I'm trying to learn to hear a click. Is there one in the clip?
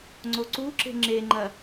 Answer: yes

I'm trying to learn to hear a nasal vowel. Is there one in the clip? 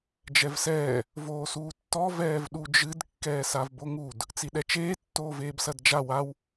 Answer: no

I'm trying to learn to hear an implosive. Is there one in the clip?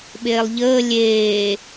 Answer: yes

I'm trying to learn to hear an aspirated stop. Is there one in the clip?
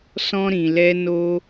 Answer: no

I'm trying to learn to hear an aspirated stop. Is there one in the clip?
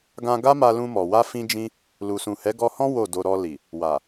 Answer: no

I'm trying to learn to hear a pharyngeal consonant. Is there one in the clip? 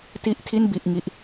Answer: no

